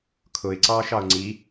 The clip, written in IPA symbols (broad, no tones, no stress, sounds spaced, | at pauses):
kʰ ʊ ɪ̯ ǀ ɑː ʃ ɑ ʊ̯ ŋ͡ǀ i